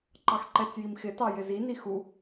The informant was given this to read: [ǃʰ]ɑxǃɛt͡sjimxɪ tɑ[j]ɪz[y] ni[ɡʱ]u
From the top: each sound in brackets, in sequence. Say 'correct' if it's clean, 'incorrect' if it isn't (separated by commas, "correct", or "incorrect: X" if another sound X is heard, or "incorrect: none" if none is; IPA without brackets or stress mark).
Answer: incorrect: ǃ, correct, incorrect: i, incorrect: x